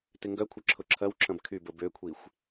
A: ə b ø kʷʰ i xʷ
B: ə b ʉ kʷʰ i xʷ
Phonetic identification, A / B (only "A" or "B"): A